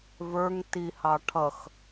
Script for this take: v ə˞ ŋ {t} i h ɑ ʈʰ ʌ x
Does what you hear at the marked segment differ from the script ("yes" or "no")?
no